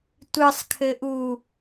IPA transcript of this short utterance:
tʷ ɨ sˤ kʰ ɘ ʔ u

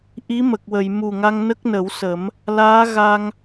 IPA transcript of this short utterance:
ʔ i˧˥ m ə˨˩ k̚ w ə˨˩˨ j m u˨˩ ŋ a˧ ŋ n ə˦˥ k̚ n ə˨˩˦ w s ə˨˩˦ m | l aː˧˥ ɣ a˧ ŋ

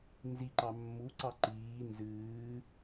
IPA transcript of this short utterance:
n z i ǃ ɑ mː u ǀ ɑ ǃ iː n z ɨː

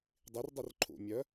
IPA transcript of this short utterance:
dˤ i r dˤ i r ǃʰ ṵ mʲ œ

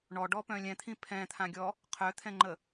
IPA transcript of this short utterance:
ɳ ɔ ɖ ɔ p œ̃ lʲ ɛ̃ t̪ʰ ĩ pʰ ɛ̃ t̪ʰ ã ɡʲ ɔ | qʰ œ t̪ʰ ɛ̃ ŋ͡ǃ ə

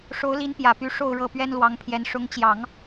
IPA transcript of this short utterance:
ʂ o˧˥ ʊ̯ l i˧˥ n p j ä˨˩ p y˧˥ ʂ o˥˧ ʊ̯ ɻ ɤ˥˩ p ɥ ɛ˥ n l w ɑ˧˥ ŋ pʰ j ɛ˧˥ n ʂ ʊ˧˥ ŋ t͡ɕ j ɑ˨˩˦ ŋ

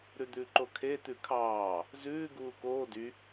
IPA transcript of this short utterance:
ɾ ʉ d̪ ʉ ǃ o kʰ e t̪ ʉ kʰ ɑː | z ʉː ɡ uː k oː d y

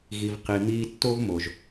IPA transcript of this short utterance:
ɣ i˨ v q i˨ m iː˧ tː o˦ v m o˨ ʒ

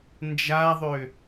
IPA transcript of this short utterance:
n d͡ʒ a ðˤ ø

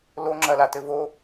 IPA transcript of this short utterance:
l o ŋ͡ǁ ɐ l a t ɘ v o

